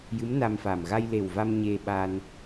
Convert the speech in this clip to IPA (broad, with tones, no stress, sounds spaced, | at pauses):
j ɨ˧˥ m n a˧ m f a˨˩ m ɣ a˧ j l e˨˩ w v a˧ m ɲ e˧ ɓ a˧ n